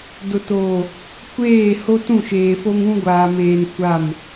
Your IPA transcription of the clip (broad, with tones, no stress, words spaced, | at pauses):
dʊ˨toː˨ | kʷeː˦˨ ho˦tũ˦˨ʃeː˨fo˦ŋ ũ˦ɡʷaː˨meː˨n kʷa˦˨m